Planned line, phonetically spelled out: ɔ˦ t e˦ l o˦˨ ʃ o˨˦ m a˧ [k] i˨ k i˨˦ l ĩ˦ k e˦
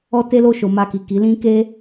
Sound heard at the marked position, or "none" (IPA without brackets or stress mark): k